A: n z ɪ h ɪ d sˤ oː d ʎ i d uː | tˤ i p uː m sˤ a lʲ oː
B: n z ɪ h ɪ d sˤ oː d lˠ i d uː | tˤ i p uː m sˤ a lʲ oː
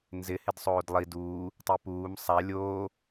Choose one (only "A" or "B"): B